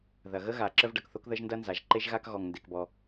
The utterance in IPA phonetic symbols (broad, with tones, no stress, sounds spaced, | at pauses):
ð ɐ˩ ɣ ə˥ ɣ a˩ ǁ ə˥ v ɖ ɐ˩ k θ o˥ k ð ə˥ ʒ n d ɐ˥ n z a˩ ʒ ǃ e˥ ʒ ɣ a˥ k ɣ ɔ˩ ŋ n d e˩ k b ɔ˩